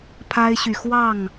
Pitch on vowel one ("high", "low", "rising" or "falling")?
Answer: high